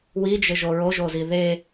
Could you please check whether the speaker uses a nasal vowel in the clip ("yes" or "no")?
no